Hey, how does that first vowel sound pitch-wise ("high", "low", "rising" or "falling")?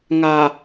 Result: low